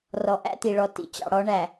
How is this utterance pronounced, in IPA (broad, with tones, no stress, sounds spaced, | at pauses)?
r ɔ˨ ʔ æ̰˦ t̪ i˨ ɭ ɔ˨ t ḭ˨ t͡ɕ ɑ̰˨ ɽ ɔ˨˦ ɳ æ˨